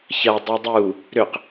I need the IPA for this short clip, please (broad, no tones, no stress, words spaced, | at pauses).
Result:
çɐ dˤudˤu | ɾʏq